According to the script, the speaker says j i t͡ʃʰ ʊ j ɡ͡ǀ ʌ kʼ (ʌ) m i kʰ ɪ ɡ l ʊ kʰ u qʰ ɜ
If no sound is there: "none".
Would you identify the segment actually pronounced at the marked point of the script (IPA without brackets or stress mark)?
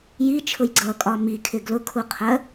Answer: ɒ